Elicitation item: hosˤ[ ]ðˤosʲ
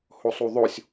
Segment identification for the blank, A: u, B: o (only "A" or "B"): A